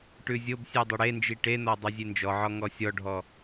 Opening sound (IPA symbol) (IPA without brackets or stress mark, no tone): ʈ